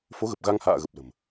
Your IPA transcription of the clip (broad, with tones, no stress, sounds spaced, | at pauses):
f o˨˦ ɣ ə˨˩ p̚ ɣ a˧ ŋ h a̰ː˧˨ ɣ ə˨˩ p̚ l ə̤˨˩ m